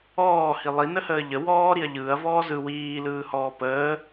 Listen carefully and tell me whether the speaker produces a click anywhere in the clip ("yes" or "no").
no